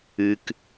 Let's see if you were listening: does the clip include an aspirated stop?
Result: no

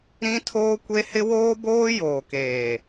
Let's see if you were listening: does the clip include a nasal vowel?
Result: yes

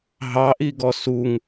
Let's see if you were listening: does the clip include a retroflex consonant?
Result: no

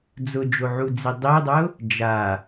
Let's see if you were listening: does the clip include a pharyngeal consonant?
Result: yes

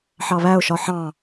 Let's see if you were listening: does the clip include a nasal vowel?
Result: yes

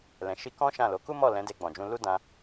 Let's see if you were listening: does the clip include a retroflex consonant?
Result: no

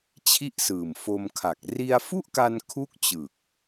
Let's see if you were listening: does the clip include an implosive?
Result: no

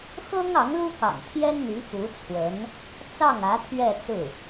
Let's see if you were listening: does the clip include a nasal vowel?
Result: no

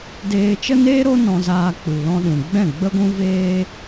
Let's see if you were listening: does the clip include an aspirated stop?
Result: no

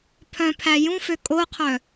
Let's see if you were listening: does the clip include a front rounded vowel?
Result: yes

